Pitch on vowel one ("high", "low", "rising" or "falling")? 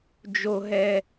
high